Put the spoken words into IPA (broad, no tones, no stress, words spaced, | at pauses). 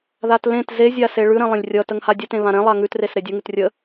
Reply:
ðatlẽt zezʲase ɭʉɾẽ lˠə̃lʲrʲʌ təŋhadʲətẽ βãɾẽ lˠaŋʉtres ɾedʲəŋʉt rʲə